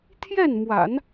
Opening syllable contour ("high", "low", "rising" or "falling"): falling